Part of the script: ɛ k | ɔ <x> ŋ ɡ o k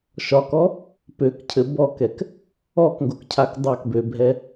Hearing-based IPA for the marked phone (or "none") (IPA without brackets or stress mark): k